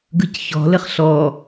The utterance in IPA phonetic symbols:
ɡɯcçɔ̤ləχ ɬɔ

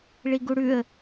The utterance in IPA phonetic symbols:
ɭiɡuɽʉə̯

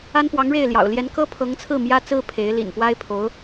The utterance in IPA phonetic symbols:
a˥npwɑ˧˥ŋɻe˥˩ɪ̯ljɑ̰˨˩ʊ̯ ljɛ˧˥nkɤ˥pʰɤ˧˥ŋt͡sʰɹ̩˥˩ mjä˥t͡sɹ̩˥ pʰe˧˥ɪ̯lḭ˨˩n pwa˥ɪ̯pʰo˧˥ʊ̯

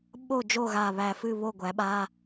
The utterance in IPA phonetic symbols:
ɓo˥˨ d͡ʒo˥˨ɣa˧˩βæ˧˩fɨ˥˨ βo˥˨ɡʷæ˩˥ɓa˧˥˧

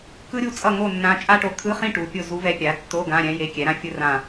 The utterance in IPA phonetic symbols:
kɯ˥ɾʲu˥˨t͡sʼʌ˥˨ ŋo˥˨nːã˧˥ t͡ʃʼa˥ʈo˧˥ t̪ʰɯ˧˥˧χĩ˥˨ ʈu˩˥pʲo˥˨ zu˧˥vɛ˧˥pʲa˩˥tːo˧˥˧ ɡã˧˥˧ɾʲɛ̃˧˥ je˧˥kʲɛ˩˥ ɾã˥fʲɯ˥rã˥˨

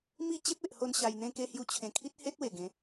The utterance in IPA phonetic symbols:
mi˦ t͡ɕe˦p̚e˨ʔho˧n ɕa˧jn̪ẽ˦ke˦ hju˧t͡ɕʰẽ˨˩kʰi˦t̚ he˦t̚we˨˩ɡẽ˨˦

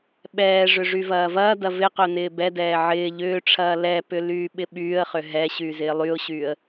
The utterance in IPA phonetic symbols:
ɓɛːʐʏ ʐyvɐːvɐːdɐ vɪqœ nɪːbɛdɛː ʕɪː ʎʏːʈ͡ʂʰɐː lɛpʏ lyːɓɪɓyːə̯χʏ ɦɛ ɕyːzɪːlˠyʊ̯ɕyːə̯

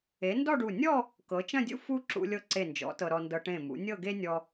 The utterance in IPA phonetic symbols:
e˩˧ ndɔ˥˧ɖu˧˩ nʲɔ˥˧ | kɤ˩˧t͡ʃɐ̃˥˧dʲṵ˥ fu˥ ǁṵ˧lʲɤ˧ǀe˧˩nd͡ʒɔ̰˩˧ tɤ˧ɾɔ˧ndɤ˧ ʈẽ˧˩mṵ˩˧ nʲɤ˥˧ɡe˥ nʲɔ˥

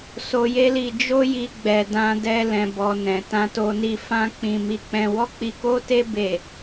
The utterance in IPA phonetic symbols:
so˧je˦li˧ d͡ʒo˦ji˧ɡ͡bɛ˨ dã˧dɛ˧ lɛ̃˨bɔ˨ nɛ̃˨tã˧to˧ni˧ fã˦k͡pĩ˧ mi˧k͡pɛ̃˧ wɔ˦k͡pi˧ko˦te˦ be˦˨

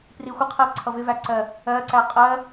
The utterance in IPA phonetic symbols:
prixʷəqʰɜ ǀʰʌvɪvæǀɜ | ɜǀæ qʼɜ

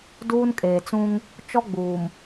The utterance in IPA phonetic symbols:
duː˦nkʼeː˨t͡sũ˦ŋ | t͡ʃɔ˦ɡ͡buː˨m

